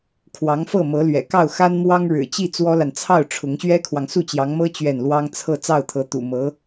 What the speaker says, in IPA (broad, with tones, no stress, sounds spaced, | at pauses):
kʰ w ɑ˧˥ ŋ f ɤ˥˩ m ɤ˧˥ l ɥ ɛ̰˨˩ k ɑ˥˩ ʊ̯ x a˥ n m w ɑ˥ ŋ ɻ ɻ̩˨˩ t͡ɕ i˥˩ t͡s w ɔ˥ l a˨ n t͡sʰ ɑ˥˩ ʊ̯ ʈ͡ʂʰ ʊ˧˥ ŋ ɕ ɥ ɛ˥ kʰ w ɑ˨ ŋ s u˥˩ t͡ɕ j ɑ˧˥ ŋ m ɤ˥ t͡ɕ ɥ ɛ˥˩ n l w ɑ˥ ŋ t͡sʰ ɤ˥˧ t͡s ɑ˥˩ ʊ̯ t̪ʰ ɤ˧˥ t̪ ṵ˨˩ m ɤ˧˥